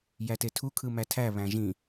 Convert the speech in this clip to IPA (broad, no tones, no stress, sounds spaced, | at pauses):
j æ t e tʰ u kʰ ɯ m æ tʰ æ β æ̃ ʒ ĩ